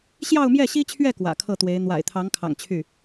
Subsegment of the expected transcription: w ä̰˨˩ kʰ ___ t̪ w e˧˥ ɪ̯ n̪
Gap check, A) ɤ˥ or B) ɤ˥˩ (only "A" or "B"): B